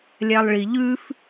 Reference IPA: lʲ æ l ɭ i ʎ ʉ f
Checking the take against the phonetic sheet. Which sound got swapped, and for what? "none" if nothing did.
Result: l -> lˠ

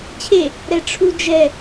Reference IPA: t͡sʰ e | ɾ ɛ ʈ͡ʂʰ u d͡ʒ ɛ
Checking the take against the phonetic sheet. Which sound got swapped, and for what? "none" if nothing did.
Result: t͡sʰ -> t͡ɕʰ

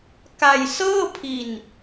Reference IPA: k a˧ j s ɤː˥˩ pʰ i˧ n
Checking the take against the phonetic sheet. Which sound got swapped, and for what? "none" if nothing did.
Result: none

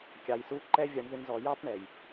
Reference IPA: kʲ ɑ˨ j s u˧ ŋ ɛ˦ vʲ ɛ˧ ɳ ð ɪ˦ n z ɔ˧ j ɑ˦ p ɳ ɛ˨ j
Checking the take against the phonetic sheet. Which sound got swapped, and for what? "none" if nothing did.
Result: ŋ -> ǃ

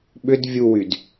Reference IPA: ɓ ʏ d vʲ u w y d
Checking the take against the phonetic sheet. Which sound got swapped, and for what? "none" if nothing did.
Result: none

